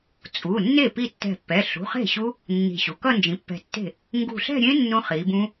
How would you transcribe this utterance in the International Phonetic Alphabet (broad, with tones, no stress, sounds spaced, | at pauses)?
t͡sʼ u˩˧˩ nː e˥˩ p i˥˧ tː ɛ̤˧˩ pː ɛ˩˧˩ ɬ ṳ˩˧˩ χ e̤˥˩ ɕ u˦˥ | nː i̤˧˩ ɕ u˩˧ k ʌ˥˧ n d͡ʒ ĩ˩˧ pː ɛ̤˧˩ tː e̤˥˩ | ŋ ɡ ṳ˧˩ ɬ ɛ̤˥˧ ɾʲ ẽ˦˥ nː ũ˦˥ χ i˩˧ b ũ˦˥